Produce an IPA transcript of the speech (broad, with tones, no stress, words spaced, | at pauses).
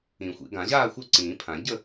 ĩ˨˩˦xʷḭ˨˩˦ ɡã˨˩˦ʑaː˥˨ xʷœ˥˨ǀĩː˨˩˦pʰã˨˩˦ ɟə˥˨